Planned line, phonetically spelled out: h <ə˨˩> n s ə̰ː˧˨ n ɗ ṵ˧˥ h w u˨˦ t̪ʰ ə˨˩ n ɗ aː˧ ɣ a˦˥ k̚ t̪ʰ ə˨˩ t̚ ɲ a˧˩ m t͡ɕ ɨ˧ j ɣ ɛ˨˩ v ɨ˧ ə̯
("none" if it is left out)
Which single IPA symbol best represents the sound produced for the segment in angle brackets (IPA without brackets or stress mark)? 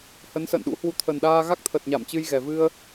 ə˨˦